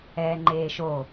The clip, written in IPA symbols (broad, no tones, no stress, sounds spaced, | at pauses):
ɛː ŋ͡ǃ eː ʃ o